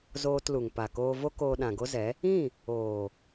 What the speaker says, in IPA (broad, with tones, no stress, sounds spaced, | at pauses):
z oː˧ t l u˨ ŋ p a˨ k oː˧ v o˦ k oː˧ ɗ ã˨ ɡ o˦ z ɛ˨˦ | ĩ˦˨ | oː˨